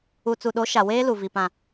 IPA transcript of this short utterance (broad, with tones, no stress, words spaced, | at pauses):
u˨t͡su˨ɗo˨˦ ʃa˨weː˦lu˨ vi˨ pã˨